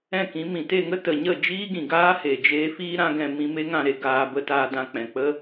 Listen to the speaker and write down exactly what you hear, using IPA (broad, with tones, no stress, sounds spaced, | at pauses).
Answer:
ɛ̃˦˨ k ĩ˨˦ m ĩ˨ t e˦˨ ŋ ə˦ t ə˨ ɲ ə˦˨ d͡ʒ iː˦ ɡ ĩ˨ ɡ aː˦ h e˨ d͡ʒ eː˧ f iː˦ ɾ ã˦ ɡ ɛ̃˧ m ĩ˧ m e˦ ŋ ã˦˨ ɾ e˧ ɡ aː˧ b ə˧ t aː˧ d ã˧ k͡p ɛ̃˨ k͡p ə˦